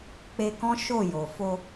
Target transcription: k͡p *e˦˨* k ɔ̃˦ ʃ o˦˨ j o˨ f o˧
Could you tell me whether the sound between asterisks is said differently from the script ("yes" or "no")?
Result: yes